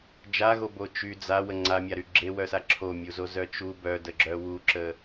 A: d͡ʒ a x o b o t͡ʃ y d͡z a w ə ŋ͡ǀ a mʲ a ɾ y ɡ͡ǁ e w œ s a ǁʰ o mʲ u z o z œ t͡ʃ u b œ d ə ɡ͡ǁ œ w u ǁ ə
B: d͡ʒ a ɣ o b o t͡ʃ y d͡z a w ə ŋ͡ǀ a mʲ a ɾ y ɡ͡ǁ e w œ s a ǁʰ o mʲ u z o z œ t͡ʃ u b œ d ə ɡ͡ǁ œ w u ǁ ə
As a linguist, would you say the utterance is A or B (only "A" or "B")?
B